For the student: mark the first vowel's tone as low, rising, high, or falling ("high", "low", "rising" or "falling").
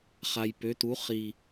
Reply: low